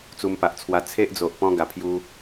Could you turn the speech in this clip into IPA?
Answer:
t͡s u˧ m p a˨ ʔ t͡sʰ w a˧ t͡sʰ e˦ ʔ d͡z o˨ ʔ p ɔ̃˧ ɡ a˨˩ pʰ j u˧

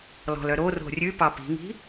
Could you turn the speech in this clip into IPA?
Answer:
l ɔ̤ l œ ɾ o r o̤ rʲ ʉ p ɑ p i̤ ŋ i̤

